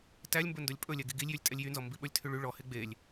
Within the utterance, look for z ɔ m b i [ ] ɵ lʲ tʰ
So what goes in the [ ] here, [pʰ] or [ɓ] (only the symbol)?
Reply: ɓ